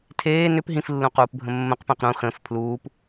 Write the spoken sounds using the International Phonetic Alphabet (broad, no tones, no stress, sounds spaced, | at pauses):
tʰ eː n ʏ p ɦ ĩ f lː ũ q uː p bʱ ə̃ mː ə̃ q p ẽ q ɾ ũ x ə̃ː f pʰ l uː p